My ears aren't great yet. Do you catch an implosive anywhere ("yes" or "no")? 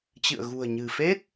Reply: no